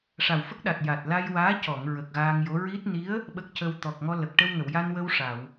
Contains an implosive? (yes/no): yes